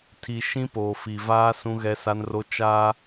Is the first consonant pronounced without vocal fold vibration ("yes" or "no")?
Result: yes